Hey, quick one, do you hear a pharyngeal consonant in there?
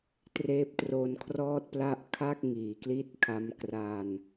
no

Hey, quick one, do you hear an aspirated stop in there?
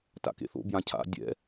yes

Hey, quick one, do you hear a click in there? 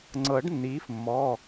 yes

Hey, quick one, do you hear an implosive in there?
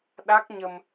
yes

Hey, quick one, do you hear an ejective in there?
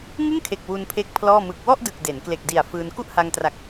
no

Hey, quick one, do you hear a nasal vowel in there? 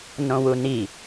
yes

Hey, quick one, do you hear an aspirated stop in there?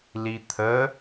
yes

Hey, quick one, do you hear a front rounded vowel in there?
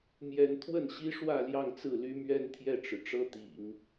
yes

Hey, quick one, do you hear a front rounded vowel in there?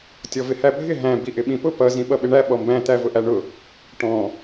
no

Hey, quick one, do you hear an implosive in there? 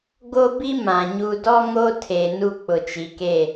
no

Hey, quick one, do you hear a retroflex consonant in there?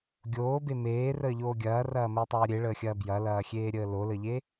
yes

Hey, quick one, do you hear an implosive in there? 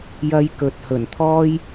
no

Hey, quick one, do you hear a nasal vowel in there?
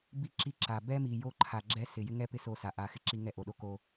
no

